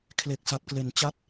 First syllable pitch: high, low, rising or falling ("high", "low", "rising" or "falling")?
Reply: low